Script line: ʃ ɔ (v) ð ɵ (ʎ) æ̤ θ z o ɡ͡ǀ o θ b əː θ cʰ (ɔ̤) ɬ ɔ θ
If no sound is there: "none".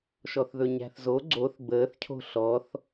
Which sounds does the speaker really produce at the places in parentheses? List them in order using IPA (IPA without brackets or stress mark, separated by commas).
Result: θ, ɲ, o̤